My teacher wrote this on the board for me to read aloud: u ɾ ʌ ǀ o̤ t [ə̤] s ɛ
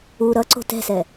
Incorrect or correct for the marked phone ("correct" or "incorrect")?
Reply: incorrect